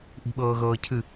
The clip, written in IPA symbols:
ʔi̤ɓɤːɣɤːcʰɨ

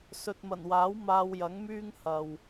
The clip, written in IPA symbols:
sɵ˨t̚mɐ˨˩nwaː˨˥w maː˧w jɐ˨˥ŋmyː˥ŋ hɐ˨w

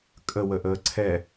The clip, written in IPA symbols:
kʼəwəʔəː ǀʰɛ

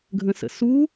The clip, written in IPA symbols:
ɡʱə̃sə̰su

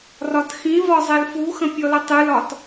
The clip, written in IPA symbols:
rɒtxĩvɒ zˤelfuxə̃ pʲɔlətˤɨlɒt

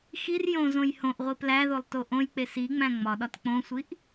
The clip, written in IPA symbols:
xir jõzõj hõʔʁʷi plæðolˠto ʔõjk͡pe siŋ͡mæ̃ ŋ͡mɒɗɒt k͡põsʷiʔ

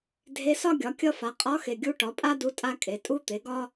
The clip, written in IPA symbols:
dʱe˧˥sɒ˥ɡʲɒ˩˥ kʲʌ˥fa˩˥ qʼɒ˧˥xe˨ ɡʲu˧˥ʈɒ˩˥pʼa˥du˧˥ tʼa˥kʼe˩˥ tʼu˥t̪e˩˥ɡɒ˥

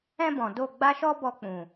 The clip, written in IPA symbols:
ɛ̃˦bɔ̃˨ do˦˨ɡ͡ba˦ʃɔ˦ bɔ˧k͡pũ˨

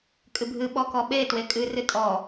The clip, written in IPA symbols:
kʼɨbʱɨ ɓɔkɔɓe twekʼɨ rɨtʼɔ

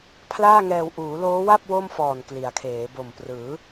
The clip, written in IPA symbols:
pʰlaː˥˩ŋɛː˧w ʔuː˩˦loː˦˥wa˥˩p̚ wo˥˩mfɔː˨˩n kli˩˦a̯kʰeː˩˦ bo˨˩mprɯː˩˦

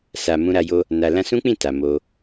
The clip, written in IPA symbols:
sa˨ mũ˧ɾa˧jo˦ | na˨ lã˧sũ˦k͡pĩ˦˨ ta˨ mo˧

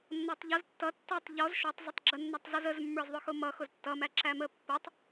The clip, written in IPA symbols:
nːɔtˤʎʌz tːʌ tːɔtˤ ʎɔz ʃɔtˤ zˤʌtˤɡ͡ǁə nːætˤzʌzəz mːə˞zðˤʊxʊmʌ xʊztːʌ mæǁæmə pːətˤ

